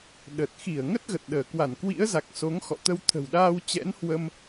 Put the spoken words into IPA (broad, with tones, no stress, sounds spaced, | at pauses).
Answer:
ɗ ə˨˩ t̚ x i˧˩ ə̯ ŋ ə˦˥ t̚ ɣ ə˨˩ t̚ ɗ əː˧˩ k w a˧˩ n k w ḭ˧˥ ə̯ z a˨˩ k̚ s o˨˦ ŋ x ɔ̰˧˨ t̪ ə˧ w t̪ʰ ə̤˨˩ w ɗ aː˧ w t͡ɕ ɛ̰˧˥ n h w ə˧ m